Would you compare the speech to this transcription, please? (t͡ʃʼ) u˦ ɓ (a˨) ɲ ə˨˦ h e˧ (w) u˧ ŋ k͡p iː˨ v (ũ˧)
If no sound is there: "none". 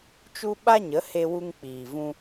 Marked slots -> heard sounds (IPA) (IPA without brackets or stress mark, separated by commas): t͡ʃ, a˦, w, ũ˧